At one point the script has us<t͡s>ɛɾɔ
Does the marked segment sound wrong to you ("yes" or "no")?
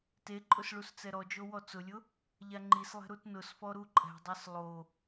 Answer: no